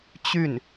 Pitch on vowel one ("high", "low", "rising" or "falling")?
falling